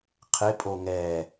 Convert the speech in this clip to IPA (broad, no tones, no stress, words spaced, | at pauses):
qʰɪpʼo ŋɛ